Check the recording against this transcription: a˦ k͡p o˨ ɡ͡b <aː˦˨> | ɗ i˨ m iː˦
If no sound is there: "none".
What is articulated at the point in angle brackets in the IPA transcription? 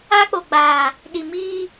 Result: aː˨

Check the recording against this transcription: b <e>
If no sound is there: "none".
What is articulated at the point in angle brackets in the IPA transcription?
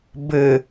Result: ɘ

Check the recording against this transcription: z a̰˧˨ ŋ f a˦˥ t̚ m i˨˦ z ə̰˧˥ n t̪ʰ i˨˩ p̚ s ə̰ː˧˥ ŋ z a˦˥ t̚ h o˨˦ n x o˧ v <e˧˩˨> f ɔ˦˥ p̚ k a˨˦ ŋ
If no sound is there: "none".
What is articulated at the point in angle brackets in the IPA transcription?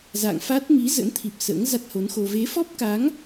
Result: e˨˦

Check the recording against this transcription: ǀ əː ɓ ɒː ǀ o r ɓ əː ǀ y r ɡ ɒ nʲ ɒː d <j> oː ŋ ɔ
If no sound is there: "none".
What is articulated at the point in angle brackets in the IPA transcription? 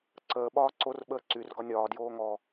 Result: j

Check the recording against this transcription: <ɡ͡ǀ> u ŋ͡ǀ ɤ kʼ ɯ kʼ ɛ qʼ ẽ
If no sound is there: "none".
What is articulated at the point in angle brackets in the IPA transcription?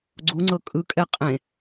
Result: ɡ͡ǀ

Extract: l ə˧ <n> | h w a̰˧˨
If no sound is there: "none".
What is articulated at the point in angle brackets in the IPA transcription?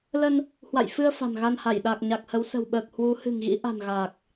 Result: n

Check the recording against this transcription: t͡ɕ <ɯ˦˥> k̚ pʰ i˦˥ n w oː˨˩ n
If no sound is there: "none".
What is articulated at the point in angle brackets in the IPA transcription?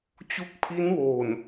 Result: u˦˥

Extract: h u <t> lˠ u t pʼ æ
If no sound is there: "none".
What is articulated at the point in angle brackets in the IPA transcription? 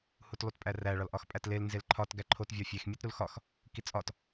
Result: t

